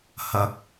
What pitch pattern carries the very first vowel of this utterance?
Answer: rising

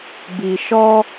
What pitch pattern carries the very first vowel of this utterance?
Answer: low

